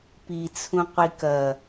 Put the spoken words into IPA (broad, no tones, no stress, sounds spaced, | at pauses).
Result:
p i t͡sʰ ũ qʷ i k ɐ